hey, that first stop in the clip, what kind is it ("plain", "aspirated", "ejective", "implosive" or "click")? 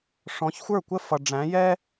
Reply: plain